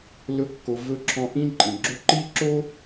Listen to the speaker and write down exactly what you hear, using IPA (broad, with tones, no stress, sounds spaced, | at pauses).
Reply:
l ɵ˨ kː o˩ v ɵ˨ ǁʰ ɔ̃˨ ʔ ĩ˦ ǃʼ ĩ˩ ɡ͡ǁ o˦ ǃ i˥ ǁ o˥